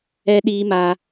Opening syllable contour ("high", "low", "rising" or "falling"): high